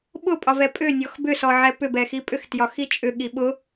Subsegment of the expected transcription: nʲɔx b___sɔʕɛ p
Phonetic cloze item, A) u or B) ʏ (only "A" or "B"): B